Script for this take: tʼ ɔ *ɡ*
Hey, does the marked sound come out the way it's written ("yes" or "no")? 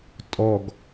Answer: yes